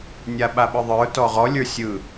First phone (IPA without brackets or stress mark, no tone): nʲ